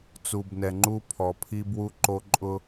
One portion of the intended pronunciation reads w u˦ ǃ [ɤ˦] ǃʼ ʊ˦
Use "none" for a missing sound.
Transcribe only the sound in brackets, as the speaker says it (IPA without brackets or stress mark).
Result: o˦